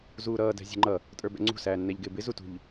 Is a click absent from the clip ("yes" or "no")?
no